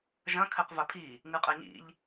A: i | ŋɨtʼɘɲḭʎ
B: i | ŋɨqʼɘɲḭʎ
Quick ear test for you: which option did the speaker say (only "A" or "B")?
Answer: B